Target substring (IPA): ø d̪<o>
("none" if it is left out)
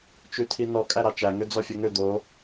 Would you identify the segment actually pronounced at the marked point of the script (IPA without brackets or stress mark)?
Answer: o